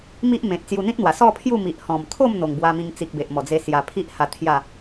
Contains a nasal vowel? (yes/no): yes